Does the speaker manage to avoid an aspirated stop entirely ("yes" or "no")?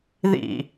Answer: yes